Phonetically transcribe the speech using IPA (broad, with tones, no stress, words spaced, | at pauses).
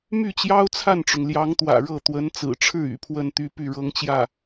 my˥˩t͡ɕjɑ˥ʊ̯t͡sʰa˥˩nʈ͡ʂʊ˩ŋ ljɑ˧˥ŋt̪wä̰˨˩ɻɤ˥˩ t̪wə˧˥nt͡sɹ̩˨˩ʈ͡ʂʰɻ̩˥˩ y̰˨˩pʰwə˥˩nt̪y˥ py˥˩ɻɤ˥ŋt͡ɕjä˥˩